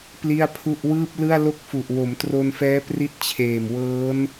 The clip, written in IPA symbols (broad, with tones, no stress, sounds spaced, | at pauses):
p l i˥˩ a̯ pʰ u˥˩ ʔ w ɯː˥˩ p̚ l ɯ˥˩ a̯ l o˥˩ k̚ f u˨˩ ʔ w o˩˦ m t r o˧ n f ɛː˦˥ p r i˦˥ t̚ t͡ɕʰ eː˨˩ m w ɤː˦˥ n